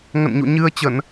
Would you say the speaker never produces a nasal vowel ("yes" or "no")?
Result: yes